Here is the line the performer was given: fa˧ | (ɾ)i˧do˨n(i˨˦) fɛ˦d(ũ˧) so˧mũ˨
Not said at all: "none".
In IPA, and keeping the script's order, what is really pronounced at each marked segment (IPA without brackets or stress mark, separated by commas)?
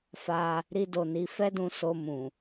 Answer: ɾ, i˨˦, ũ˧